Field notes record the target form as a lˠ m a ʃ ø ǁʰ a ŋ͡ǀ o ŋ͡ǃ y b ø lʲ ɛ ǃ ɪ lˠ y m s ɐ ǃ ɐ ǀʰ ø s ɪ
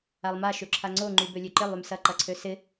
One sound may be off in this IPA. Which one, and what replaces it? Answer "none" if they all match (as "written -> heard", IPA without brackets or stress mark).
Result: ɛ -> ø